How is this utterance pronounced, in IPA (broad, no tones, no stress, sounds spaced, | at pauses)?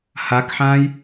h a k ħ ãː j